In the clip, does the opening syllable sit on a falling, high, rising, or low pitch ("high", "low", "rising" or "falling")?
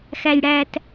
low